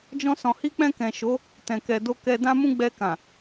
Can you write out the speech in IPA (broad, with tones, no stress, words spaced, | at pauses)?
d͡ʒɔ̃˧ sɔ̃˨hi˧k͡pɛ̃˧ kɛ̃˨ʃo˨˦ | tɛ̃˨kɛ˨do˧ kɛ˨dã˧ mũ˦ ɡ͡bɛ˧kã˨